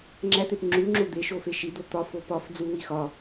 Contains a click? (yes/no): yes